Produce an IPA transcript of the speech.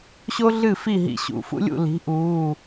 ɕo˥ɮɨ˥˩fi˥˩ ɦḭ˧˩˧ɕṵ˩˧˩fṵ˥lʲṵ˥˩ li̤˩˥ʔuː˩˧˩

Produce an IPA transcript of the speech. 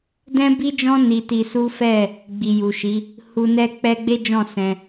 dɛ̃˦bi˦d͡ʒɔ̃˦ ni˧ti˧su˦ fɛ˦˨ | ɡ͡bi˨ju˨ʃi˨˦ | hu˧nɛ˦k͡pɛ˦ ɡ͡be˦d͡ʒɔ̃˦˨ sɛ̃˧

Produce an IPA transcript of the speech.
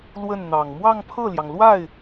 lwə˥˩nn̪ɑ˨˩ŋ mwɑ˥˧ŋpʰɤ˥˩ljɑ˩ŋlwa˥˩ɪ̯

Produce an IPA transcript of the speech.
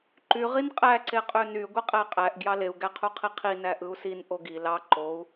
ǃy ʁinqʼæ ǀeqʼøny ɡʷiqʼæqʼæʔ ɡjɑleu̯ ɡæqʰuqʰiqʰi næʔɯu̯sin ʔoɡi lɑ ǃou̯

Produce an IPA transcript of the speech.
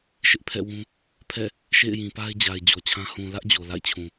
ʃɪ˦ʔpʰɛ̰˦˨ wũ˦ | pʰɛ̰˦˨ | ʃḛ˦˨ɪ̯jĩ˨pa˦ɪ̯d͡ʑa˨ɪ̯ d͡ʑɔ˨t͡ɕʰã˦ hũ˨lä˦ʔ d͡ʑo˨la̰˦˨ɪ̯t͡ɕʰũ˨

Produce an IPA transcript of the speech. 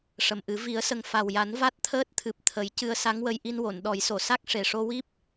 ʂə˨˩mʔɨ˨˩˦ vi˨˩˦ə̯sə˨˩ŋ fa˨˩wja˨˩˦n va˦˥t̚t̪ʰəː˦˥t̚ t̪ʰɨ˨˩p̚t̪ʰə˨˩˦j cɨ˧ə̯sa˧˥ŋwə˧j ʔi˧nwo˨˩˨nɗɔ˨˩˦jso˨˩˨ sa˦˥k̚ʂe˨˩ʂo˧wi˦˥p̚

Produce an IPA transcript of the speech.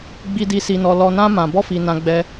ɡ͡bi˧di˧ si˧nɔ˧lɔ˧nã˦ mã˧bɔ˦fi˧nã˧ ɡ͡bɛ˧

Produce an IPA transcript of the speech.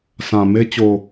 sã˨me˦ t͡ɕo˨

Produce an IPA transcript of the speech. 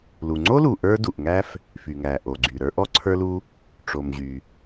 lu˩ŋ͡ǀo˥lu˩ ʔə˞˥du˩ʔŋæ˥f | fy˩ŋæ˩ ʔo˩ɡ͡ǀy˩ ɾə˞˥ ʔɔ˥ǀʰə˞˥lu˥ | ʈ͡ʂo˩mʑy˩

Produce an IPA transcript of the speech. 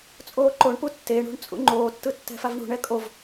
t͡sʼoːǃoɳpu tːeɳṳɳ t͡sʼṵŋ͡ǃoːtːɯ tːɛ̤favɳṳɳɛ kʼov

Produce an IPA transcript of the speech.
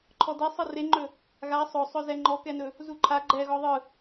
ǃʰɔde sˤɯreŋ͡ǃɵ | ɣa sˤɵsˤɵ zɛŋ͡ǃɔkɛnɵ | zuǃʰa ɡ͡ǃɛɣɔ ðˤɯ

